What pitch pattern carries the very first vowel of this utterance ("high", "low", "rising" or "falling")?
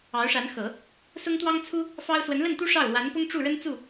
rising